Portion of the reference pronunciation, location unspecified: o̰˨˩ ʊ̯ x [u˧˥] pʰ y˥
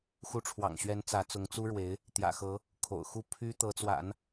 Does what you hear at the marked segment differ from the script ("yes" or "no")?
yes